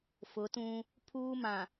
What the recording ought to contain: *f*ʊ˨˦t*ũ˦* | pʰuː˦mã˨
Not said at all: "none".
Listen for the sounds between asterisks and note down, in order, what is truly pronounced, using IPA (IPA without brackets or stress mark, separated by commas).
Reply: f, ũ˦